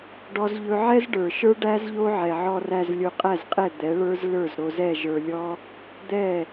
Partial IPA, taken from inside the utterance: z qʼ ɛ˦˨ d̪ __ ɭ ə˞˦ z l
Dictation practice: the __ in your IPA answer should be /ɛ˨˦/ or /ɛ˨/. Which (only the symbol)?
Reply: ɛ˨˦